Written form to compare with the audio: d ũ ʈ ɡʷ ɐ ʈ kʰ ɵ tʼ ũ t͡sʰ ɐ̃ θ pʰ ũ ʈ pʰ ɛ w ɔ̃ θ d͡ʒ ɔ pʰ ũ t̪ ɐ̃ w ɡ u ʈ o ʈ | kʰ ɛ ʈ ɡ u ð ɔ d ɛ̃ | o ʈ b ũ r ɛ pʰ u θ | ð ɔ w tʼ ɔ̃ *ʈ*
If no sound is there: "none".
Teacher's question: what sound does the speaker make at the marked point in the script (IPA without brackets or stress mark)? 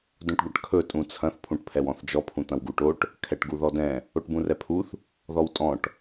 ʈ